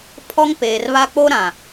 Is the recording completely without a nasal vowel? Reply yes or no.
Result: no